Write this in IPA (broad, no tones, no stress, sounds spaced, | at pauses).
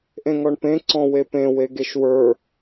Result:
ʔ ẽ ŋ ɔ ɳ p ẽ ǀ ɔ̃ w e p ẽ w e ɡ e ʃ w ə˞